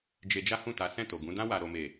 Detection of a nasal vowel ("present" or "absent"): present